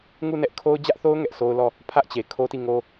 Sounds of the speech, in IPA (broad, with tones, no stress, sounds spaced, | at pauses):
ŋ u˦˨ n ɛ˦ ʔ kʰ o˦ ʊ̯ d͡ʑ ä˦ ʔ θ o˦ ʊ̯ ŋ ɛ˦ ʔ s o˦ ʊ̯ l ɔ˦˨ | pʰ ä˦ ʔ t͡ɕ e˨ kʰ o˦ t i˦˨ ŋ o˦